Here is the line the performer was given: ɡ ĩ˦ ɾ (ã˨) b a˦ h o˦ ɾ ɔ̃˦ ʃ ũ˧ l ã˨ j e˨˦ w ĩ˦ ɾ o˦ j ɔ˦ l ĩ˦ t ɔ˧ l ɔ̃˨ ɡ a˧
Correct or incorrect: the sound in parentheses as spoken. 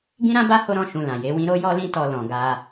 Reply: incorrect: ã˦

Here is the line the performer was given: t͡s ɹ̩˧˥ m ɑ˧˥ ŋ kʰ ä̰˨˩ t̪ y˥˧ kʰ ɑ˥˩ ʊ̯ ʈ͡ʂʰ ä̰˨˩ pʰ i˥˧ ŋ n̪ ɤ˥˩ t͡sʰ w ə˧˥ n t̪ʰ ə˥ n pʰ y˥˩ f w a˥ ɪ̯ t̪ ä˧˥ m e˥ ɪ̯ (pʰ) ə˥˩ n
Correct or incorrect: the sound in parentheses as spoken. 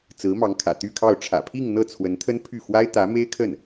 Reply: incorrect: kʰ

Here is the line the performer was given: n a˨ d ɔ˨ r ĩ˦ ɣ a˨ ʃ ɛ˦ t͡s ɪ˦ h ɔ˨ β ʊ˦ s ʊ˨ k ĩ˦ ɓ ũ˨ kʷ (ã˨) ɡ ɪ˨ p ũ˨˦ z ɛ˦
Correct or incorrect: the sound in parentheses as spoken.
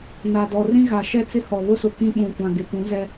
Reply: correct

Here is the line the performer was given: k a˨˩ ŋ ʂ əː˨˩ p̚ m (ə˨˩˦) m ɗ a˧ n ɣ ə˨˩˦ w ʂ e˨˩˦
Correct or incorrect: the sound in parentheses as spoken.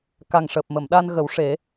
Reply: incorrect: ə˨˩˨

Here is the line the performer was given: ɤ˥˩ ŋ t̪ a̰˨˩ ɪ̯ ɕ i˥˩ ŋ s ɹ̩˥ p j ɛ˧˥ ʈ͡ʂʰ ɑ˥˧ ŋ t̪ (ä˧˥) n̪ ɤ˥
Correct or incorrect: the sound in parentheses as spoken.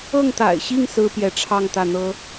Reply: incorrect: ä˥˩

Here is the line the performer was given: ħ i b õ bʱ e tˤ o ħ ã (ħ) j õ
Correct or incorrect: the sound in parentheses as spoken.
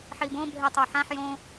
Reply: correct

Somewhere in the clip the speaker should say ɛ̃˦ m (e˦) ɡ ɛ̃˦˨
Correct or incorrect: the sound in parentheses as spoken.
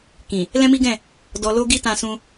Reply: incorrect: i˦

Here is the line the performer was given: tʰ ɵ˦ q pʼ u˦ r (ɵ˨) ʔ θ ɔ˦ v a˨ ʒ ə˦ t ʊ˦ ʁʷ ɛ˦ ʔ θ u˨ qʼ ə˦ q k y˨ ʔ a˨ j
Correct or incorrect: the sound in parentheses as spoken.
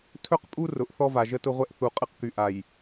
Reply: incorrect: ʊ˨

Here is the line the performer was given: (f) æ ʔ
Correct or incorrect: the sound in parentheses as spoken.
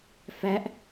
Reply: correct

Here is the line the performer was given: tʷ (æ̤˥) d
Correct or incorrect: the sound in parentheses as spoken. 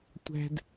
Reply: correct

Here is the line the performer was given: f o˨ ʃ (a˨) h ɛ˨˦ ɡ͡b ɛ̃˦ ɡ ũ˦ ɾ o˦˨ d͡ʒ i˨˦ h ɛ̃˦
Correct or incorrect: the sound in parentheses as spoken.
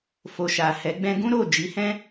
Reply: correct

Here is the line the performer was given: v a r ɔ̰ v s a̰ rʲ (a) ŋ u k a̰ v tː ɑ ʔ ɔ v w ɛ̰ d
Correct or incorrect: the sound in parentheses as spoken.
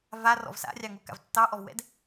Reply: incorrect: ɑ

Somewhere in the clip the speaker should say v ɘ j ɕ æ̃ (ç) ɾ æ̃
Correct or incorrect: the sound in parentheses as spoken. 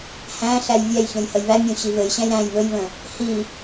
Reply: incorrect: j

